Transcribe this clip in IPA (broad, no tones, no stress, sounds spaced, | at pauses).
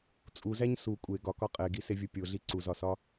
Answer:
t͡sʼ u z æ ɲ s u kʷʼ e ɡ ɒ k ɒ qʼ e ɡ i s e vʲ u pʲ o ɮ i ǀ u z ɒ s ɒ